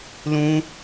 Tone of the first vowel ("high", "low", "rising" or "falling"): high